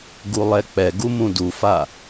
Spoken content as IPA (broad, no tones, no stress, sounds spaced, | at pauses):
ɡ u lˠ ɛ k͡p ɛ ɡ u m ũ d u f a